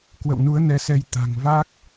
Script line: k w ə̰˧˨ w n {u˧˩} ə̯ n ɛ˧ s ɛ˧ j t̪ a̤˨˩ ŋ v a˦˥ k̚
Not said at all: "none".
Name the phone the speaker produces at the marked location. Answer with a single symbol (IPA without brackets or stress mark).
u˨˦